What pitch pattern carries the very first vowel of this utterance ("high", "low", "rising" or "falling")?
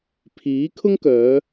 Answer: rising